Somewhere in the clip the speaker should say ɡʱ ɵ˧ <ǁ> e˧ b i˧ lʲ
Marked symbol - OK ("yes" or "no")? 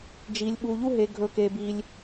no